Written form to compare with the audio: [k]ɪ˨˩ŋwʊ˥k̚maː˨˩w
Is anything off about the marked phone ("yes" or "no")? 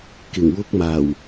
no